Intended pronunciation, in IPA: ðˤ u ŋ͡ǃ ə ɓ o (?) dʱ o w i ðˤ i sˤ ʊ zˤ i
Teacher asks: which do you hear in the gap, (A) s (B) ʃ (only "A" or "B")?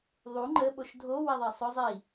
B